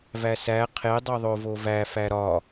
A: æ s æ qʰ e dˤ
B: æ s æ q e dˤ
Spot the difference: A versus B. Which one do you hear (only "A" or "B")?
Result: A